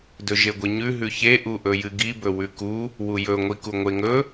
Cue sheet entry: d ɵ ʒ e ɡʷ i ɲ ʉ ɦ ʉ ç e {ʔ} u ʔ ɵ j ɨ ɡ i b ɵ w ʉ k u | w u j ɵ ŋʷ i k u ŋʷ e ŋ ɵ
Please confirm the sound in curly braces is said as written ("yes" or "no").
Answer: yes